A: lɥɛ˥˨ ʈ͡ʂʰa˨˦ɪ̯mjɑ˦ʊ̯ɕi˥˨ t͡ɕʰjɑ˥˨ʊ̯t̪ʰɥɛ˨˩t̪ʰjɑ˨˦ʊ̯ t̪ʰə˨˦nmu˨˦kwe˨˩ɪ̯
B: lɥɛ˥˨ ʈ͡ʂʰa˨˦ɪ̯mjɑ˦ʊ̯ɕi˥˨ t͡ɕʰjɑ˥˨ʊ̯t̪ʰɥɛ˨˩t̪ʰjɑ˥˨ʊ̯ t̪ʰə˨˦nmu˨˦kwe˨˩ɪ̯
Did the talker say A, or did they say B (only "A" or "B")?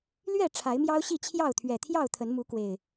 B